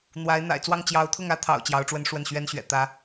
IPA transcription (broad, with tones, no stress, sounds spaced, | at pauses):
n̪ w a˧˥ ɪ̯ n̪ a̰˨˩ ɪ̯ t͡s w ɑ˥˩ ŋ t͡ɕ j ɑ˧˥ ʊ̯ t̪ʰ ʊ˥˩ ŋ ä˥ t̪ʰ ɑ̰˨˩ ʊ̯ t͡ɕ j ɑ˧˥ ʊ̯ ʈ͡ʂ w ə˥ n ʂ w ə˥˩ n ɕ ɥ ɛ˥ n ɕ ɥ ɛ̰˨˩ t̪ ä˧˥